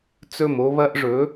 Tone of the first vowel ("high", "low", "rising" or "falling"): falling